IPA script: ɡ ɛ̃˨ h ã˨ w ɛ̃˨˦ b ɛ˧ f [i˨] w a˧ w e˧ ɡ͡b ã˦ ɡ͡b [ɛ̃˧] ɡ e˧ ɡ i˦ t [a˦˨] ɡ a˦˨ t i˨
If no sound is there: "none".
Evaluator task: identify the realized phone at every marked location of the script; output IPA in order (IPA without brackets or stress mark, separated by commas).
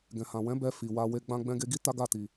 i˨, ɛ̃˧, a˦